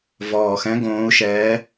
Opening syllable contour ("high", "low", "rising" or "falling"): low